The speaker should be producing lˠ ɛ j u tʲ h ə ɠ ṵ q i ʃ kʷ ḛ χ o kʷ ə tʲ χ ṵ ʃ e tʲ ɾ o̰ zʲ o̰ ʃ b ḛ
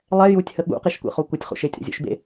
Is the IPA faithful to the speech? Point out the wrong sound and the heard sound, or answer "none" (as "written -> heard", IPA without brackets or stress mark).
none